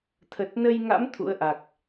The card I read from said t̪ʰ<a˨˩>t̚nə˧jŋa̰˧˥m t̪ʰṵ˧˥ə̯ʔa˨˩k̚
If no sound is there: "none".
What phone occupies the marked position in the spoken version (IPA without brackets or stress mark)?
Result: ə˨˩